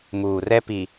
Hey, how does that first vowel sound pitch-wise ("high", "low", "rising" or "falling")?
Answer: low